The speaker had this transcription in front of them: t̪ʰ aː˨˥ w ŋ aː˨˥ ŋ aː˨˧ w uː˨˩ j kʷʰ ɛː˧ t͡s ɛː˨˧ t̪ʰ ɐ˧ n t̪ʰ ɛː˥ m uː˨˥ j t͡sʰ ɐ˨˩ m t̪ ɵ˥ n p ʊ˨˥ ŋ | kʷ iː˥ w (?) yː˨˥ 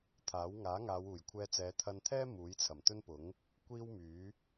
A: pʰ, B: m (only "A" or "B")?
B